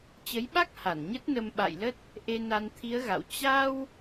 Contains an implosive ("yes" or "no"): yes